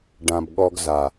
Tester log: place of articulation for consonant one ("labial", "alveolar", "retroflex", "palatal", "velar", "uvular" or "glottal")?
retroflex